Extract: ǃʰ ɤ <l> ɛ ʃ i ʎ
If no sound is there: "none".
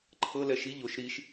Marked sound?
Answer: l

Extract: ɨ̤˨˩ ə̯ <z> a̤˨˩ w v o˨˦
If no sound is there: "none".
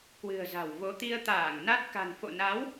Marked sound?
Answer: z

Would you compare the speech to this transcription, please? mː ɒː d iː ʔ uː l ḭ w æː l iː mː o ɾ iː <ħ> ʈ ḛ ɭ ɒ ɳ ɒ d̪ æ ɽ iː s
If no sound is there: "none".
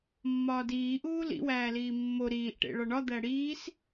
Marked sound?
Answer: ʔ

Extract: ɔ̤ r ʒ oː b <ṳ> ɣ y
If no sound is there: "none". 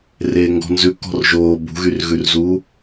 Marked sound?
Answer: ṳ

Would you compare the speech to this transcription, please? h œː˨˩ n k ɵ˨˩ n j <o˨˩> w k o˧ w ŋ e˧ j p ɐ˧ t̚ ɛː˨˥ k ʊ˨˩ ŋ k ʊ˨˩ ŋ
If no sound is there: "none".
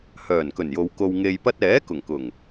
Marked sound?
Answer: o˨˧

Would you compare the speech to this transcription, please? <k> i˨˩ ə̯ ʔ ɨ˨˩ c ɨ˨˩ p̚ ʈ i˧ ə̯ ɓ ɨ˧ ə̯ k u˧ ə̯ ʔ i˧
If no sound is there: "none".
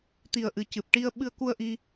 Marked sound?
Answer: t̪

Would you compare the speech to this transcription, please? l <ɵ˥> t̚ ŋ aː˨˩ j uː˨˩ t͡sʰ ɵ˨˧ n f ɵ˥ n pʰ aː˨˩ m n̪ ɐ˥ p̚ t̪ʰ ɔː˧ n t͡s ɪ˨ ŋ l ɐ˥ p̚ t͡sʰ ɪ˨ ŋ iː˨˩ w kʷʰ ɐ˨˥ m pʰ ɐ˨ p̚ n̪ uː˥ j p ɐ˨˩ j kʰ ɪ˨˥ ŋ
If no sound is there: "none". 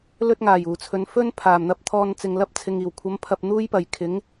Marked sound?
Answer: ɵ˥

